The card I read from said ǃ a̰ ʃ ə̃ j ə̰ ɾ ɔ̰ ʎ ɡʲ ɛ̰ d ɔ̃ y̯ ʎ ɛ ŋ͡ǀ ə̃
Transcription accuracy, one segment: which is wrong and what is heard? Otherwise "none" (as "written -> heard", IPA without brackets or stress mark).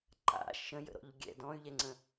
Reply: none